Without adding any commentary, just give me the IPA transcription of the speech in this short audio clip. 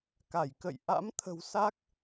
k a˧˩ j k ə̰˧˨ j ʔ a̰˧˥ m t̪ʰ ə̤˨˩ w s a˦˥ k̚

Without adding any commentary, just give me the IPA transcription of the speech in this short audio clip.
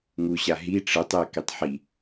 ŋ u ɕ a ɦ i ʈ͡ʂ ɯ tˤ e k i tˤ ħ i

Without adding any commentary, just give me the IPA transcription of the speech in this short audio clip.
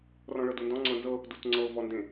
r ɔ̃ ɭ ɤ d u n d ɔ̃ ŋ͡ǀ ɤ n z ɤ | d u t ŋ͡ǀ ɤ v ɔ n d ẽ

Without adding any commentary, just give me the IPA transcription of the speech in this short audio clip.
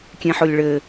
kʲ ẽ ħ o lʲ ɭ ɘ

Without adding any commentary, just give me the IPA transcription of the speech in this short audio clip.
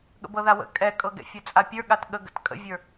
ɠ ə̰ b ɤ ð a w ə̰ kʼ ɛ kʼ ɤ ɡ ɛ̰ fʲ ɛ t͡sʼ a pʲ ə˞ ɠ a t ɠ ə ɡ ə̰ t kʼ ə̰ vʲ ə˞

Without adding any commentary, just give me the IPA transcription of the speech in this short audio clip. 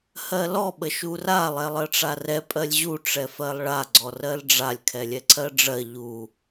h ɜ l ɔ ɓ ə ʃ u r a lˠ ɛ lˠ ɜ ʈ͡ʂ a r ɛ pʼ ɜ lʲ ʑ u ʈ͡ʂ ɛ f ɜ lˠ ɭ a ɡ͡ǀ ɔ r ɜ l ɖ͡ʐ a lʲ kʰ ɛ lʲ ɛ ǀʰ ɜ ɖ͡ʐ ɜ ʎ u

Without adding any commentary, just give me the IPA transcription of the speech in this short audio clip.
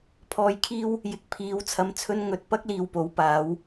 pʰ ɔː˧ j kʰ iː˥ w | j ɪ˨ k̚ pʰ iː˨˥ w t͡sʰ ɐ˧ m t͡sʰ ɵ˥ n ŋ ɵ˨˥ t̚ p ɐ˥ k̚ l iː˧ w p o˨˥ w p aː˨˥ w

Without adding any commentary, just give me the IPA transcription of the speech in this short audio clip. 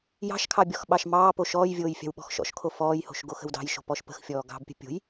j ɑ̤ ʃ kʰ ɑ bʲ ɔ x ɓ ɑ ʃ m ɑː p o ʃ ɔː j vʲ oː j fʲ ɑ̤ w ɓ ɔ̤ x ʃ ɔ̰ ʃ kʰ o f ɔː j h o̤ ʃ ɡ o x ə̤ w d ɑ̤ j ʃ o̤ p ɔ ʃ p ə̤ x fʲ ɔː ɡ ɑ̤ b pʲ ə̤ pʲ o̤ j

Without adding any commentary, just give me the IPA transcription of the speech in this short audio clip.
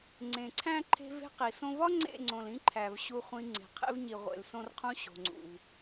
ŋ͡ǀ ẽ˨ ǀʰ æ̃˦ ǃʰ e̤˦ v e̤˦ q i˨ s õ˧ v ɒ˦ ŋ͡ǀ ḛ˦˨ ŋ͡ǀ õ˨ l ĩ˦ ǃʰ æ˨ v ɕ u˧ χʷ ĩ˧ ŋ͡ǀ e̤˨ qʰ ḛ˦ v ɲ i˨ ʁʷ ḛ˨ l s õ˧ r qʰ ũ˧ ɕ o̤˨ ŋ͡ǀ ṵ˨ v

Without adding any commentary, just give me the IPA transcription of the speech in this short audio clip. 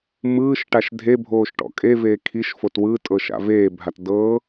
m ɯː ʃ ʈ a ʃ dʱ e bʱ oː ʃ ʈ ɔ̰ kʼ e v eː kʰ i ʃ f o t w ɯ tʼ ɤ ʃ a̰ v eː bʱ a t d ɤ

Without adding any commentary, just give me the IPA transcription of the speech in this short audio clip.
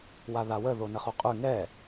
w a ð a w ə ð o n ə χ u qʼ ʉ ŋ ɛ

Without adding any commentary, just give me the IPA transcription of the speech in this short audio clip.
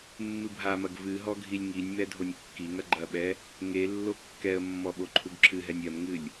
mː ɨ bʱ a m ɐ ɡ v ɨ ɦ ɔ ɡʱ i lʲ ŋ i nʲ m ɛ dʱ o nʲ kː i ŋ ɐ ɡ͡ǃ ɐ ɓ ɛ | ŋ e lː o kː ɛ ə̯ mː ɔ ɓ o ǃʰ u ɡ ǁʰ ɨ ɦ ɛ nʲ ɐ m ŋ ɨ lʲ

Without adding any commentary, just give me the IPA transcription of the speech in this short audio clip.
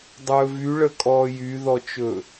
dˤ ɵː v y ɭ ə kʼ ɔː j y ð ɔ t͡ʃ ɵ

